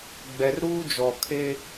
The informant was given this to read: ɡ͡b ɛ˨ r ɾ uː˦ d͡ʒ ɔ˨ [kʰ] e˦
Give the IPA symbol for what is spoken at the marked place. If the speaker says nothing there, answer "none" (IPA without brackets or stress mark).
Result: kʰ